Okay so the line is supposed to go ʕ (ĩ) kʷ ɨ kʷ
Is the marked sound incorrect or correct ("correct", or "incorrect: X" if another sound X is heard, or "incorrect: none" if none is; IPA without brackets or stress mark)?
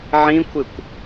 correct